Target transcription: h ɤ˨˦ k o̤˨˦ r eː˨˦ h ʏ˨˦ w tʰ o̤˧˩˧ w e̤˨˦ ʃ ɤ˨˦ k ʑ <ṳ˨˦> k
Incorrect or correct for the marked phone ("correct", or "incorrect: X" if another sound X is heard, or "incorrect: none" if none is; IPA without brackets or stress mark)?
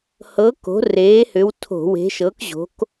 incorrect: o̤˨˦